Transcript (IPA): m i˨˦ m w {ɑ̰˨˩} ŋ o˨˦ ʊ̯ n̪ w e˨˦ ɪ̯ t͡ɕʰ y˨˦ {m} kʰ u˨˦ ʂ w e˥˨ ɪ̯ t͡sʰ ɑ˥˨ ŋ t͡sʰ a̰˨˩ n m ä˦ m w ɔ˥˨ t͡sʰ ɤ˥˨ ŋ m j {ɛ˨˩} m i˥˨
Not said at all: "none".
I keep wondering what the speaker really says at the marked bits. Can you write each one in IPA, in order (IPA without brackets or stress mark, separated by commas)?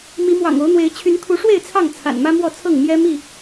ɑ̰˨˩, n, ɛ˦